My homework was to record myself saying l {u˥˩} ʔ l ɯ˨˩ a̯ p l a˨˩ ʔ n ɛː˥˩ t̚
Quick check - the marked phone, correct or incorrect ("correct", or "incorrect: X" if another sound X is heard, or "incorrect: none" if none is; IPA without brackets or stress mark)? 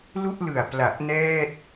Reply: correct